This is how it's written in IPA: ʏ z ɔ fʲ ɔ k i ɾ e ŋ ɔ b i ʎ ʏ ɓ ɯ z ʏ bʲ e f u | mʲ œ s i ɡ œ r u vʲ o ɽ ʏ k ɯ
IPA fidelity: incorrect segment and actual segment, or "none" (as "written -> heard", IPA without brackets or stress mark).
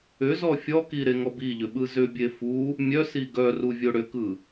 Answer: none